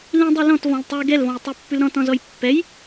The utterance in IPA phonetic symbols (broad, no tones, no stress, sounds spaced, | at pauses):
l ĩ dˤ i l ɔ̃ t v ɔ̃ l tˤ y ɡ ɛ l v ɔ̃ j tˤ y pː ʉ l ɾ ɔ̃ t ɔ̃ z ɔ j pː ɛ j